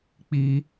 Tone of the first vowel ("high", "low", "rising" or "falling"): high